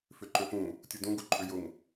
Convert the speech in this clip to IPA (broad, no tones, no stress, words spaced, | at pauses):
fʏǃøfũ | tʲudũ ɡuǃʼʏjʊŋ